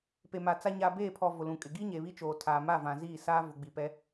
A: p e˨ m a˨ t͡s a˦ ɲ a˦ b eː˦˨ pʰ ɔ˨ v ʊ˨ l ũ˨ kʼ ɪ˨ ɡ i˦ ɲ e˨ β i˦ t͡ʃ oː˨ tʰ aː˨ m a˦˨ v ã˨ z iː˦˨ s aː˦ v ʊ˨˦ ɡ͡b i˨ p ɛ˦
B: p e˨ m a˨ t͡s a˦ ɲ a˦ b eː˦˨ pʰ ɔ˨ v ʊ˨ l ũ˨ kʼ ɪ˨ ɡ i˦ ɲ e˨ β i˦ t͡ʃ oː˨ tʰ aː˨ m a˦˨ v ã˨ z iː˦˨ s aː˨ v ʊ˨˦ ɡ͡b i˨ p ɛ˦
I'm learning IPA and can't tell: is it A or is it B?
A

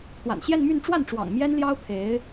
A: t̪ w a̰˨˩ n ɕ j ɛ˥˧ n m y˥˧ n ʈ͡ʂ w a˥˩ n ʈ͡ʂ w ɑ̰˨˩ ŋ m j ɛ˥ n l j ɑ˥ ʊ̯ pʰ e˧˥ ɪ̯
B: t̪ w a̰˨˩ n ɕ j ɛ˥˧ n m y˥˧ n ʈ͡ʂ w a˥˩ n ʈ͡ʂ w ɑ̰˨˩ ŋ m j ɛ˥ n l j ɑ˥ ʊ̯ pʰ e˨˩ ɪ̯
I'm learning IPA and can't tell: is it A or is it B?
A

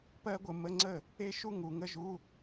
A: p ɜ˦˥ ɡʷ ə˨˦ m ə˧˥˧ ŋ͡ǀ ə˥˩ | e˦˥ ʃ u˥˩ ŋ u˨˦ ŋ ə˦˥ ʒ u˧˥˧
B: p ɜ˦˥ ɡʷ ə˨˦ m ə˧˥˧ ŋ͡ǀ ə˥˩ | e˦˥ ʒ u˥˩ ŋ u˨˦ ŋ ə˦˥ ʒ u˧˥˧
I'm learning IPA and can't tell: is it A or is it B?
A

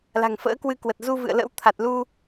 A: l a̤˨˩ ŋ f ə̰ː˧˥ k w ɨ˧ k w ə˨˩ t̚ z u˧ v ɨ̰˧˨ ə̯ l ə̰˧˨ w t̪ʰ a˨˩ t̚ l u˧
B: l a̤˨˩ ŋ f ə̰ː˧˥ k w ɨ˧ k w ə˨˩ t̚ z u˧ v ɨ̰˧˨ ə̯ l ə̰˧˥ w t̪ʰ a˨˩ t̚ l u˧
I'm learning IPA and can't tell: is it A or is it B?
B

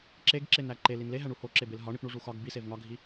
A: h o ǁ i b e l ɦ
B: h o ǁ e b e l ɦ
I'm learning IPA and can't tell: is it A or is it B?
B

